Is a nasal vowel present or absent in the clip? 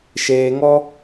absent